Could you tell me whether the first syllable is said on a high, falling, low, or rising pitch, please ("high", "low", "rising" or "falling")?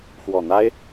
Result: low